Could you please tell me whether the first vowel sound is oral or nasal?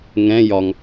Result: nasal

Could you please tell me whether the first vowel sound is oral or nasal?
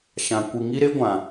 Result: nasal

